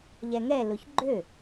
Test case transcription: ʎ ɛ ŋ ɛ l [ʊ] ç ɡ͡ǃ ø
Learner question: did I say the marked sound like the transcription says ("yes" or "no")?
yes